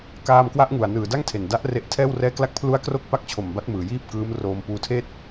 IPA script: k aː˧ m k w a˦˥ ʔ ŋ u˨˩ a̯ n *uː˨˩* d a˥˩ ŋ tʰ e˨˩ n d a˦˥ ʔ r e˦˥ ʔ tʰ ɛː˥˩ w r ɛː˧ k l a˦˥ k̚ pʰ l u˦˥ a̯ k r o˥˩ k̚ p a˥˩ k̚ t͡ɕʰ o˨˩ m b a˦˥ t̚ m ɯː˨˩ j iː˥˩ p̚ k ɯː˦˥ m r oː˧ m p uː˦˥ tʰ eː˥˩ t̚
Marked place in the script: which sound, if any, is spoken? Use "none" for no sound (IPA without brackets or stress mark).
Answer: ɯː˨˩